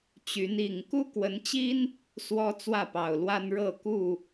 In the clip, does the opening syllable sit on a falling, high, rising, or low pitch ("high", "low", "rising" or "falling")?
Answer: rising